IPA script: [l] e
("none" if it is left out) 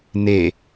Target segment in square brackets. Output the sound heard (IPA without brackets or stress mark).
n